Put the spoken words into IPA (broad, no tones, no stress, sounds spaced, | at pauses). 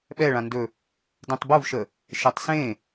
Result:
ɓ ɛ ɭ ã n d ɵ | d ẽ tˤ b o v ʃ ə | ʃ e tˤ s ẽ